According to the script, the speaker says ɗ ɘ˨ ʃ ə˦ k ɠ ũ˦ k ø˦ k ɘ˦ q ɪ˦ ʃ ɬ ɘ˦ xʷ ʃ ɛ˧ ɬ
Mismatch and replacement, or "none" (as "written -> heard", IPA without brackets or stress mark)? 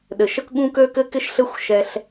q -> k